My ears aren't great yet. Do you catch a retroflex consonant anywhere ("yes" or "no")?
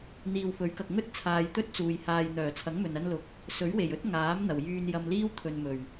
no